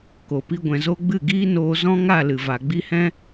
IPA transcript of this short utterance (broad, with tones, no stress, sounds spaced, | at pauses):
k o˨ p i˧ ɡʷ ɛ̃˨ z o˧ ɡ͡b ɨ˦˨ ɡ iː˦ n oː˧ z ɔ̃˦ ŋ a˦˨ l ɨ˨ v a˨ ɡ͡b i˧ h ɛ̃˦